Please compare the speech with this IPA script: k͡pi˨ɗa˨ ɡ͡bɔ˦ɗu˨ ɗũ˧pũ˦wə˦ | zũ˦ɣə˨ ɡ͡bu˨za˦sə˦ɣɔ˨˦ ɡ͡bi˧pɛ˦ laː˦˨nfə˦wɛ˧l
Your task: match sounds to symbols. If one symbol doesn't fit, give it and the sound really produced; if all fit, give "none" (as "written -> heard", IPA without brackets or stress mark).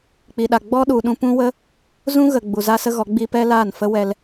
none